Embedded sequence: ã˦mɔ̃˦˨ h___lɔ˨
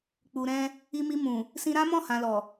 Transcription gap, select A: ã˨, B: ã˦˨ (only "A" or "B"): A